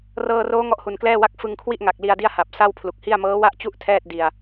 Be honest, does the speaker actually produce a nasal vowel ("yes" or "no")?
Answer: no